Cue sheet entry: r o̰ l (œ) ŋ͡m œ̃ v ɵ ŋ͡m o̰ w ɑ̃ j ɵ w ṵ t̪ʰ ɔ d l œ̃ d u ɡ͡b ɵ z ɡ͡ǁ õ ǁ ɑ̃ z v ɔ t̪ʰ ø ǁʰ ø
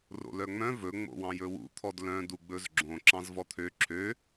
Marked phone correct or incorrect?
correct